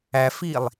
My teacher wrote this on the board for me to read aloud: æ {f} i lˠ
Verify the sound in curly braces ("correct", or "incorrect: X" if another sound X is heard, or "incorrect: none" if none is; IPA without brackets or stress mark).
correct